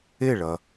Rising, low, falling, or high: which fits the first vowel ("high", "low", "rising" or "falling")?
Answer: falling